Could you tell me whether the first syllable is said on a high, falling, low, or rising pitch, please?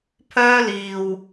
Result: high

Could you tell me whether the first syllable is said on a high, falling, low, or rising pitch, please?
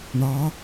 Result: rising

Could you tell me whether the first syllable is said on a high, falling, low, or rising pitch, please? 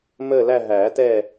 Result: falling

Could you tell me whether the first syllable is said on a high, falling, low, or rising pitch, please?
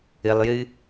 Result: low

